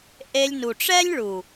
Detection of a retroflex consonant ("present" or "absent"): present